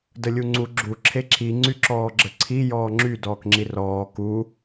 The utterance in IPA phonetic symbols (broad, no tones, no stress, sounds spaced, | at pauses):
d ə lʲ u ŋ͡ǀ u ɡ͡ǁ u ǁʰ e ǁ i ŋ͡ǀ y ǁ ɔː ɡ͡ǁ ə ǀʰ i j ɔː ŋ͡ǁ y d ɔː k ŋ͡ǁ i r ɔː k u